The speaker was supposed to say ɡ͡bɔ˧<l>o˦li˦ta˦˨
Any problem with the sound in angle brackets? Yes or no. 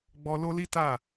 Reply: no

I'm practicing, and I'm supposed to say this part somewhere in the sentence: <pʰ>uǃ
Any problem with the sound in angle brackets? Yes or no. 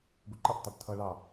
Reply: yes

